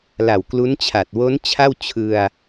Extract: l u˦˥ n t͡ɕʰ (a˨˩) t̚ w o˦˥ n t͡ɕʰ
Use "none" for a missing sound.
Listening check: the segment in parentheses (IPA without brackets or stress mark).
a˨˩